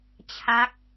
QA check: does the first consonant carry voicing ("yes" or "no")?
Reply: no